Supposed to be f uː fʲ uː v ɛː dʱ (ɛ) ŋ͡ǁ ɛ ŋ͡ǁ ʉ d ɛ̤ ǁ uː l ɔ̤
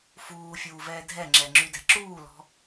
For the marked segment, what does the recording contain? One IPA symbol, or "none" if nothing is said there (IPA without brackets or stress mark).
ɛ